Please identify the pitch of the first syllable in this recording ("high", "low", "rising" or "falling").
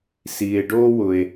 low